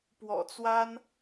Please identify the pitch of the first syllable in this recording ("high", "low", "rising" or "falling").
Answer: low